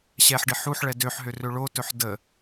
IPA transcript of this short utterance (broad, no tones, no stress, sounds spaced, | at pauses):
ɕ ɛ ħ ɖ ɪ ħ u ħ ɭ ɛ d ø ħ ɦ ø r ø ɭ o t ɵ ħ d ə